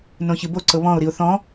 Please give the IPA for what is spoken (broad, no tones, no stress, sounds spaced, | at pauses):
n õ ç ɨ b o ǀ ɤ β ɔ̃ ʊ̯ ɾ i ʊ̯ θ ɔ̃